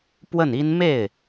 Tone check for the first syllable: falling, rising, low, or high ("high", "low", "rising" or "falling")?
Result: falling